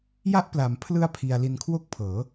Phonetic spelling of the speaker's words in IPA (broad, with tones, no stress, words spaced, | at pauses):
ja˦˥ʔpla˩˦mpʰlɯ˦˥a̯ pʰi˧a̯ li˧nkʰwo˥˩k̚pʰɤː˩˦